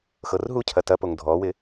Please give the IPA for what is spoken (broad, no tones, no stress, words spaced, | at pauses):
xɤrɦucʰɐ tɐpoŋ dʱɔwɪ